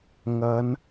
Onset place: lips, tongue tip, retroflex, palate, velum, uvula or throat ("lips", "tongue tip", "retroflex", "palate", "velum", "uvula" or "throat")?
velum